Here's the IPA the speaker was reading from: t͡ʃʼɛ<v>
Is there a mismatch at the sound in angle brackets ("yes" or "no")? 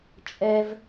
no